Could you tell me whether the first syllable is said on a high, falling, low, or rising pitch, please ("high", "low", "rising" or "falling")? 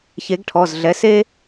rising